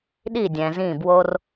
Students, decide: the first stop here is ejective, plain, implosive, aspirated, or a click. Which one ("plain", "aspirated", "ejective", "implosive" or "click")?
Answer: implosive